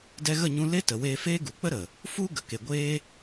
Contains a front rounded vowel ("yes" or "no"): no